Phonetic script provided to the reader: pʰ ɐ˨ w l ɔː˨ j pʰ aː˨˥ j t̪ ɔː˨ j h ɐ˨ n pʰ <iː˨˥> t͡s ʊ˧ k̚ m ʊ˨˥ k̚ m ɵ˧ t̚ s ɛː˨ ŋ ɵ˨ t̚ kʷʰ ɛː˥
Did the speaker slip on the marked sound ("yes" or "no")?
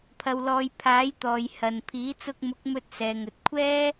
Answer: no